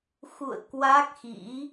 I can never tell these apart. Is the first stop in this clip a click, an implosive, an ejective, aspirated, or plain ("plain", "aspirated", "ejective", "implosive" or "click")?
plain